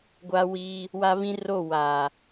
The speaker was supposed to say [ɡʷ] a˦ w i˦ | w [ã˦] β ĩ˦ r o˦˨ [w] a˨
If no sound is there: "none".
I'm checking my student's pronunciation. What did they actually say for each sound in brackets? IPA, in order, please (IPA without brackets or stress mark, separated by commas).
ɡʷ, a˦, w